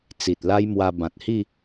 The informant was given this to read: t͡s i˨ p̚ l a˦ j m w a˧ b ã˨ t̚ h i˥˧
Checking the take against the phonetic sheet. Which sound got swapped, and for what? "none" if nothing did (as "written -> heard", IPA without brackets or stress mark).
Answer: p̚ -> t̚